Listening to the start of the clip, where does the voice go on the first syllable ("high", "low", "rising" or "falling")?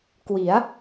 rising